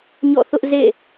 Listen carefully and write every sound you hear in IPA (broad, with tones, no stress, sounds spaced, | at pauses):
ɲ ɔ̰˦˨ θ ʊ˦ ʔ z ḛ˦˨